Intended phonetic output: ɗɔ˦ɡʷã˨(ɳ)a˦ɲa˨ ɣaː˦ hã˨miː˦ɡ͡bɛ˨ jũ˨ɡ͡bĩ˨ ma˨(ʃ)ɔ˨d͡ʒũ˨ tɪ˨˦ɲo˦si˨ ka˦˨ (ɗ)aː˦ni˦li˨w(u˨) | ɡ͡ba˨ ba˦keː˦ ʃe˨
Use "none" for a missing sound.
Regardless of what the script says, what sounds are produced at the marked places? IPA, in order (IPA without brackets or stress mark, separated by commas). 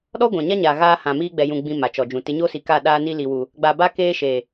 ɲ, t͡ʃ, ɗ, u˨